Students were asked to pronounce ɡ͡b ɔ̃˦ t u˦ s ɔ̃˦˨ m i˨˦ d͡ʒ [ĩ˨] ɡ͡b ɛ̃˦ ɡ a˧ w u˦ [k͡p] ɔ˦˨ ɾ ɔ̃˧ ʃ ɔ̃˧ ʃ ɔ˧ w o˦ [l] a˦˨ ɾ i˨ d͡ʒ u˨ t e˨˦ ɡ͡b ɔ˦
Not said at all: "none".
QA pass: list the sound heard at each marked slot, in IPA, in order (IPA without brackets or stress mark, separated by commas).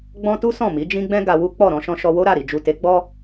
ĩ˦, k͡p, ɾ